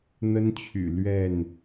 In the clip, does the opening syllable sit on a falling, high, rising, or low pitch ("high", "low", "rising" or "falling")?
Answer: high